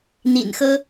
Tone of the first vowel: low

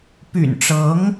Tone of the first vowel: low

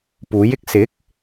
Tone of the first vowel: rising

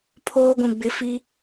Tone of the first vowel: high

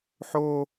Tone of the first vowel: high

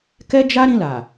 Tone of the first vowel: high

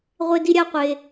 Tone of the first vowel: high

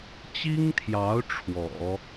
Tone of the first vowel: high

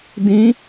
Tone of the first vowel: rising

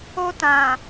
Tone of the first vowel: high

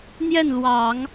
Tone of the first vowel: falling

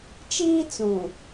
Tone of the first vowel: high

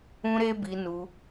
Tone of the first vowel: high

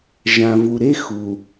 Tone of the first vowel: low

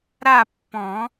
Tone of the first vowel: falling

